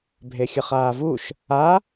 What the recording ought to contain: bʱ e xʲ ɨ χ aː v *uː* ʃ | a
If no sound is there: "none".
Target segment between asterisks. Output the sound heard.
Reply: u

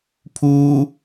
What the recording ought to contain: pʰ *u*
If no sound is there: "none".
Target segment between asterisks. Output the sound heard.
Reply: u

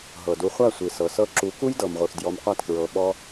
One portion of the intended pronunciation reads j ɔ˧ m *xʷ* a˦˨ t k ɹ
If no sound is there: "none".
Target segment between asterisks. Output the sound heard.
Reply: qʷ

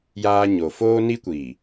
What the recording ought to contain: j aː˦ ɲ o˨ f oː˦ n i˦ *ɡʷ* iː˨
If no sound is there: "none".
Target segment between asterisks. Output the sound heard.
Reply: kʷ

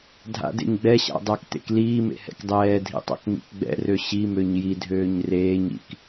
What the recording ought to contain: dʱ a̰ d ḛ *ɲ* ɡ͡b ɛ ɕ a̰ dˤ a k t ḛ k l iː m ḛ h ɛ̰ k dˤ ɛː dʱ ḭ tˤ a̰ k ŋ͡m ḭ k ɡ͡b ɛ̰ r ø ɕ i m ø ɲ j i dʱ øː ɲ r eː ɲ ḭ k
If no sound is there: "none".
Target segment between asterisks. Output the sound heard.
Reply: ɲ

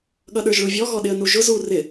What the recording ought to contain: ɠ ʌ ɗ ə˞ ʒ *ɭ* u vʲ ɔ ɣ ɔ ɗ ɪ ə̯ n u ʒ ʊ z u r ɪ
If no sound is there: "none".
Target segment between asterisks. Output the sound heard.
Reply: ɭ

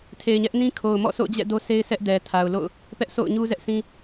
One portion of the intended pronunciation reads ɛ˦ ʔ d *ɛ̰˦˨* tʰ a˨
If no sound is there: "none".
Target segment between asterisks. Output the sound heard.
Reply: ɛ˨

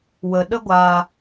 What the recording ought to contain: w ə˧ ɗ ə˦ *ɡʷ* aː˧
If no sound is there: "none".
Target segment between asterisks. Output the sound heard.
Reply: ɡʷ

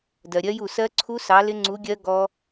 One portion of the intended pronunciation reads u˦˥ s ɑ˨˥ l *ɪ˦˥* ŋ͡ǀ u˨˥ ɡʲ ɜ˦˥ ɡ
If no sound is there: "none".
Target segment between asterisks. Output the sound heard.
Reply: ɪ˦˥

